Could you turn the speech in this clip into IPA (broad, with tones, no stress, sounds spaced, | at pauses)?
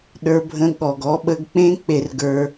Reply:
ɗ ə˞˧ bʱ ə̃˧ ɠ ɔ˨ ɡ ɔ˧ ɓ ə˧ ɡ k͡p ẽ˦ k͡p e˧ r ɡ ə˞˧